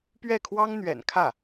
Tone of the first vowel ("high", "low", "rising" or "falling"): falling